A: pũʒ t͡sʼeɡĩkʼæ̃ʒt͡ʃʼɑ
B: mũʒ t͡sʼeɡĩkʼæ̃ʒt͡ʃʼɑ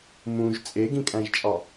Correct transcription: B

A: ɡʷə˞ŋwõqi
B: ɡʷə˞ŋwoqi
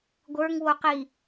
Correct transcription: B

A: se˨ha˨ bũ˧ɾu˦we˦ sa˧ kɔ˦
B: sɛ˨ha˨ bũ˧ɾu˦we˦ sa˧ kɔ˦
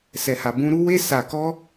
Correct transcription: B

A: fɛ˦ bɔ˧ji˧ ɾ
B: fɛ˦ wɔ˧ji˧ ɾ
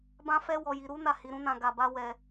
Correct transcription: B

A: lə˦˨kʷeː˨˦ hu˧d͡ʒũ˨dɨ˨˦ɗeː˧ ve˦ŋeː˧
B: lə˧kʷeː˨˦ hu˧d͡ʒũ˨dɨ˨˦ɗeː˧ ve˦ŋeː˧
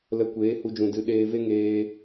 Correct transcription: B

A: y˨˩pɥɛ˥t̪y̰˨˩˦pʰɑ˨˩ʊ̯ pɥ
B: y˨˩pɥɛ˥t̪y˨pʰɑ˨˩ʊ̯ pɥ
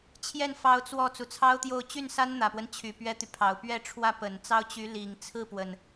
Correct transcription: B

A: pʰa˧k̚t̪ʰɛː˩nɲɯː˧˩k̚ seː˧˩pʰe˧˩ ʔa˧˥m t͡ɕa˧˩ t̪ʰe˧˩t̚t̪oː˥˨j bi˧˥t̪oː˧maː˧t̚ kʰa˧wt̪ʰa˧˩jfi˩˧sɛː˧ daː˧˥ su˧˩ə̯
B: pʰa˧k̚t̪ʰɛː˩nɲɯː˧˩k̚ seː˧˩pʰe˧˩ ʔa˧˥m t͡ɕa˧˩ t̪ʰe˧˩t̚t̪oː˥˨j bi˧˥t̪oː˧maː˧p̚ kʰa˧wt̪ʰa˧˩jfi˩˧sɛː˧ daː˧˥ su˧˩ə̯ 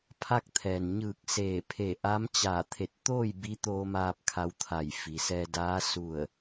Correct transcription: B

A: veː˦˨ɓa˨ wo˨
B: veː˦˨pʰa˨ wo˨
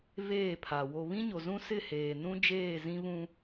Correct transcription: B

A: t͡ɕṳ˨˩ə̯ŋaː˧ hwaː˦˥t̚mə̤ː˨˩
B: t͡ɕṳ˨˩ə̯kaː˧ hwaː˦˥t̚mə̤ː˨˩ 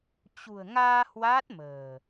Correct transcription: A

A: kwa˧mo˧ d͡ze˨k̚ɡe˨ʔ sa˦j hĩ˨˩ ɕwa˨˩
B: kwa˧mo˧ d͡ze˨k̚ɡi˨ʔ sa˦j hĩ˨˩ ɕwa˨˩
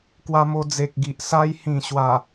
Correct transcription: B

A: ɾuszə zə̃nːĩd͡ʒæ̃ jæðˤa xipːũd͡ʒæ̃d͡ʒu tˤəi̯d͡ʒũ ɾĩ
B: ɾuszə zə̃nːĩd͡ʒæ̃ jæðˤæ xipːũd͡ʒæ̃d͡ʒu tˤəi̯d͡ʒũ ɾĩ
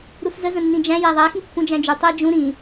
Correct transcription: B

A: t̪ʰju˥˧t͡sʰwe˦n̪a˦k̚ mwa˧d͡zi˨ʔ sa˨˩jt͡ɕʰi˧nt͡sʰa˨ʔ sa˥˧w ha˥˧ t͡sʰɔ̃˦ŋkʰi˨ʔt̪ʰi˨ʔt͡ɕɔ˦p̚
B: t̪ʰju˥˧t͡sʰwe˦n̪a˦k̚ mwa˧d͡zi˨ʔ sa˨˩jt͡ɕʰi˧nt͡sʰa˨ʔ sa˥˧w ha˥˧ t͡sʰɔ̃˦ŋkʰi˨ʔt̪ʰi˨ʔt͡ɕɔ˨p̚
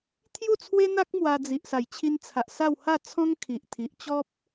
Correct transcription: A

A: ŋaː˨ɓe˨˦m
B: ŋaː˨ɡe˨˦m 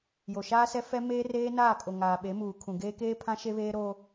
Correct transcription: A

